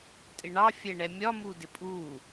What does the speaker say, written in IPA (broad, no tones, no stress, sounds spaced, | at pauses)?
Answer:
tʼ ɪ ɳ ɑ fʲ ɛ ɳ ɛ mʲ ɒ m u d ɪ pʼ u